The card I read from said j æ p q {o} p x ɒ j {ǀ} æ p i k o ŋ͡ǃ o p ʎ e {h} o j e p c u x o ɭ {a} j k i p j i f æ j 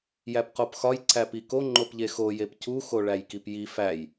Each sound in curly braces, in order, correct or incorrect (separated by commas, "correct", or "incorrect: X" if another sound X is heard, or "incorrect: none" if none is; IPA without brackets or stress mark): correct, correct, incorrect: x, incorrect: æ